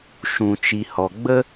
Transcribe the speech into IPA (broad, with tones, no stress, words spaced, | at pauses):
ʃũ˨t͡ʃi˨hɔ˨ ɡ͡bə˧